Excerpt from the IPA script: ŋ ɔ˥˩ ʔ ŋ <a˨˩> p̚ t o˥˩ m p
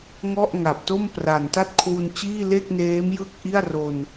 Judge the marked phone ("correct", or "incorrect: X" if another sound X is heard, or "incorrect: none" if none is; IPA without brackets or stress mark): correct